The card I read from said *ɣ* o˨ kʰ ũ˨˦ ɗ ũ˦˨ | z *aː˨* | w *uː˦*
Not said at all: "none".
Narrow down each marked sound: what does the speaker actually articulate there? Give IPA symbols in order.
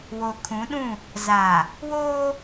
w, aː˨, oː˦

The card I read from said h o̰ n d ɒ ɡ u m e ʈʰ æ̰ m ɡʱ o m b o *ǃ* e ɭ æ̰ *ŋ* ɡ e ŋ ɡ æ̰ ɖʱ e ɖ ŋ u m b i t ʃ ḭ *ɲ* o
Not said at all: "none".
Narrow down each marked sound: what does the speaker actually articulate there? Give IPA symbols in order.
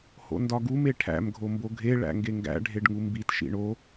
ɡʱ, ŋ, ɳ

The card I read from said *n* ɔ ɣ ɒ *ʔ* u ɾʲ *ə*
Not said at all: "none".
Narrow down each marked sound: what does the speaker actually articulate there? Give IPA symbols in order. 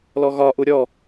l, ʔ, ɔ

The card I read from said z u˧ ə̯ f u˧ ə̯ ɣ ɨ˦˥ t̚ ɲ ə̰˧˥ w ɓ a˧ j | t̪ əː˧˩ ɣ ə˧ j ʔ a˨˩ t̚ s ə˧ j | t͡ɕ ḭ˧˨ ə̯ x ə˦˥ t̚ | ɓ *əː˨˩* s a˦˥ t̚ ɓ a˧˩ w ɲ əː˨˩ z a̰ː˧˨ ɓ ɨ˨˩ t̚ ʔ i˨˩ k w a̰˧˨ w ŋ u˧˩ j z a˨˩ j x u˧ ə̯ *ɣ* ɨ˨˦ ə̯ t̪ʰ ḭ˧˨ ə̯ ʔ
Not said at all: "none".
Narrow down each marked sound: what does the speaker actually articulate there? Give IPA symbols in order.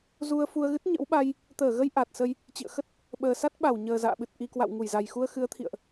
əː˨˩, x

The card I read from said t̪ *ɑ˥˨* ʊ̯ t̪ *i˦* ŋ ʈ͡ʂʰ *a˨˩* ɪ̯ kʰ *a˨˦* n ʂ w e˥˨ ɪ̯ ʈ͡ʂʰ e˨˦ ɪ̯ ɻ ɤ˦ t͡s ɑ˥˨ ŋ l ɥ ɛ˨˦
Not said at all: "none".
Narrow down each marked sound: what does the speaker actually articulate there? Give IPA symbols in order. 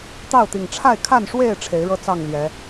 ɑ˥˨, i˨˩, a˥˨, a˥˨

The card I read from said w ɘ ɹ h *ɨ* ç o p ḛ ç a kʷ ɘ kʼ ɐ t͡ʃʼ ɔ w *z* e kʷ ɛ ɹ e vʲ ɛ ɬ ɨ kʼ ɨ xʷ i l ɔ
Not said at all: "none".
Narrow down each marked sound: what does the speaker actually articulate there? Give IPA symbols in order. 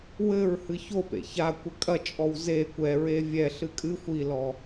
ɨ, z

